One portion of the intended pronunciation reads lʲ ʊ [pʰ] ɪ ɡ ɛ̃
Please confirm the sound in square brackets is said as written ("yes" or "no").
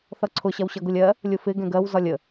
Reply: no